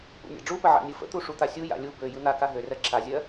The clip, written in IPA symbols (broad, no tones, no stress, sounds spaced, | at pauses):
p ṵ nʲ a̰ ɖ͡ʐ u p ə ʕ a̰ nʲ ɯ f ə̰ t̪ u ʂ u t̪ a sʲ u j a̰ lʲ u b ø j ɯ n̪ a k a ɦ ø r ɜ ǁʰ a zʲ ɜ